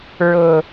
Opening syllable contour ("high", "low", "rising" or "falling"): low